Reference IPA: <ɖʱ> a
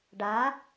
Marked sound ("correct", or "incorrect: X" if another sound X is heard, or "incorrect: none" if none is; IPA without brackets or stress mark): incorrect: ɖ